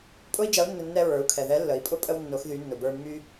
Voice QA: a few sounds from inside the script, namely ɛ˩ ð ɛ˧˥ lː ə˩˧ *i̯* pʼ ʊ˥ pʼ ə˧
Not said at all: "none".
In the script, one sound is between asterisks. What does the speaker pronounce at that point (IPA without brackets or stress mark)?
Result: i̯